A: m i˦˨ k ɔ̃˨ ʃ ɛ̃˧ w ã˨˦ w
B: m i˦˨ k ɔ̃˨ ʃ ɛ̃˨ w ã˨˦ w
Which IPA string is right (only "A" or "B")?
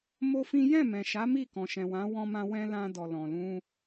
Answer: B